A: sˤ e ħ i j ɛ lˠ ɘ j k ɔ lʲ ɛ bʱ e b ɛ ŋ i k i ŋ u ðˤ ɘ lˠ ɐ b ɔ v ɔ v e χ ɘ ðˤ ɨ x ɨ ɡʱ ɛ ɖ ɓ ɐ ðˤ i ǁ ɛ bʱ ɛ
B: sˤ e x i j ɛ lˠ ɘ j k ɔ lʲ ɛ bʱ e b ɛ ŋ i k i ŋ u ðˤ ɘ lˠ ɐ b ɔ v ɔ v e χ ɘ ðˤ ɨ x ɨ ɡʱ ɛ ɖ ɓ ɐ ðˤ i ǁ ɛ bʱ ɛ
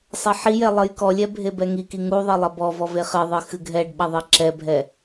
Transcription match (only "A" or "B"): A